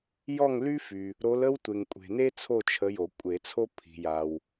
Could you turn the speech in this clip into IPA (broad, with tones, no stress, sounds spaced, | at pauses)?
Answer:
j ɔ˦˨ ŋ l y˦ f y˨ | ɾ o˨˦ l ə˦ w tʷ e˨ ŋ kʷʼ e̤˨ n e˦ t͡sʰ o˦˨ t͡ʃʰ ə˨˦ j o˨˩˦ kʷʼ e˨˩˦ t͡sʰ o˦ pʰ i̤˨ j a˨ w